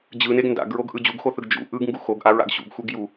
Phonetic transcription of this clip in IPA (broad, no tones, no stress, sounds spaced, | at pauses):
d͡ʑ ɯ n e ɡ n d a̰ ɡ ɹ o ɡ ʔ ɯ d͡ʑ u ɡ x o θ ɯ ɡ d͡ʒ ṵ ʔ ɯ ɡ ŋ ɡ u x o ɡ ʔ a ɹ a̰ ɡ ɕ ṵ ɡ xʷ e ɡ j u